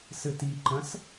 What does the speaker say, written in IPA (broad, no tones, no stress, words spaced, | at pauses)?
sɘtiǃɐ̃s